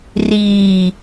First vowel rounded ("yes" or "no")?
no